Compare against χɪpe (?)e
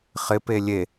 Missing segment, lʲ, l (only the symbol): lʲ